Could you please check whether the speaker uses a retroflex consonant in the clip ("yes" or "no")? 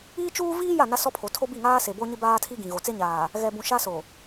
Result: no